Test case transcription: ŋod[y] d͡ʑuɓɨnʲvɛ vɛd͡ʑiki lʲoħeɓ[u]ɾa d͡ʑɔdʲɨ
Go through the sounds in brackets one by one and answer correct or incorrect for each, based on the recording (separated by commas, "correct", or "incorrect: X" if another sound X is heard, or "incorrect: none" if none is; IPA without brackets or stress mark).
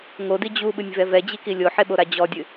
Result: incorrect: i, incorrect: o